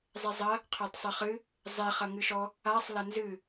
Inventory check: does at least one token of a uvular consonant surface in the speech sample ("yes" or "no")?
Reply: yes